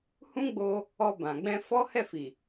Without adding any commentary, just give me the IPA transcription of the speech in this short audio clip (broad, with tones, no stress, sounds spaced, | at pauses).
h ũ˦ ɡ͡b o˧ | ɔ˧ b ã˨ ɡ͡b ɛ̃˧ f ɔ˦ h ɛ˦˨ f i˨